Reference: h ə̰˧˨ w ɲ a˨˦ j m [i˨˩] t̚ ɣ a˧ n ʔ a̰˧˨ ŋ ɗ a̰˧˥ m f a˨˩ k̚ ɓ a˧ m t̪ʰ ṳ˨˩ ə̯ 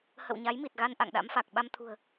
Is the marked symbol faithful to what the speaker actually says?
yes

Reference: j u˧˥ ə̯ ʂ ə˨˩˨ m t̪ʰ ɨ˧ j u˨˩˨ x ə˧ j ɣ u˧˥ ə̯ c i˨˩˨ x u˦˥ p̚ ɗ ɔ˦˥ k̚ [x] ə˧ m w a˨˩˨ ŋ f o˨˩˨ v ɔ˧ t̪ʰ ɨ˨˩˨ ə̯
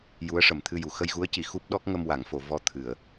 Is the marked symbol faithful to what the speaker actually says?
no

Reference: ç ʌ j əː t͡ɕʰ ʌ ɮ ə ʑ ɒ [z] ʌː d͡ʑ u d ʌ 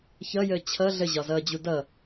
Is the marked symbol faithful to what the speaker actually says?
yes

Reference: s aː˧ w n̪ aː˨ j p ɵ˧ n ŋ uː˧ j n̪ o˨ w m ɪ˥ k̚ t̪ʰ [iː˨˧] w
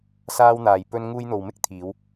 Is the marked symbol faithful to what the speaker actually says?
yes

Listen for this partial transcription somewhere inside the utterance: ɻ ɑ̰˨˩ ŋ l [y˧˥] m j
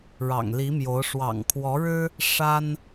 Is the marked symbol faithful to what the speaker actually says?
no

